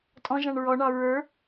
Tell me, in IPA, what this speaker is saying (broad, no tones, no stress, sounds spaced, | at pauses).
tʼ ɔ̃ ʒ ɑ̃ ɳ ɹ ɔ ɳ ɑ ɹ ə˞